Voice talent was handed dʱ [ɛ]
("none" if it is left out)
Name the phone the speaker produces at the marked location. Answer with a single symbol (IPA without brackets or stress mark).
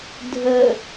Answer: ə